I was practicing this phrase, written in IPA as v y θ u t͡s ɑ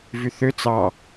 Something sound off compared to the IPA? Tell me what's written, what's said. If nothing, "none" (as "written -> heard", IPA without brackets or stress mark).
u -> ø